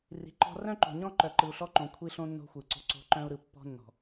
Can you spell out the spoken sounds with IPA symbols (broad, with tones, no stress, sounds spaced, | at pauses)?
r i̤˨ ǃ ɔ̤˦ r œ̃˦ ǃ o̤˨ ɲ ɔ̃˦ ǃ œ˨ ǃ ɯ˨ u̯ ɬ ɔ˦ ǃ õ˨ kʷʰ i˦ ɬ õ˦ nː o̤˦ xʷ ɯ˨ ǀ o̤˦ ǀ o̤˦ ǃ œ̃˦ u̯ ɾ ɯ˨ pː ɔ̤˦ nː ɔ̤˨